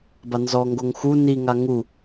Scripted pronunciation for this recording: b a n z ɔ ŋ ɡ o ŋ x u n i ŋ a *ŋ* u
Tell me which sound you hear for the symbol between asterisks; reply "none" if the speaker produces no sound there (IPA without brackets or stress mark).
ŋ